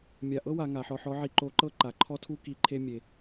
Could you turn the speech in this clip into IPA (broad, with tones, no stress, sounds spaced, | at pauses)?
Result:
mʲ a˧ ʔ ɤ˥ w a˩˧ ŋ a˩˧ ħ ɔ˧ ħ ɔ˧˥ ʕ i˧ ǃ o˧˥ ǃ ɤ˥ ǃ a˩˧ ǃʰ ɔ˥ tʰ u˥ k i˧˥ ǃʰ e˥ mʲ e˧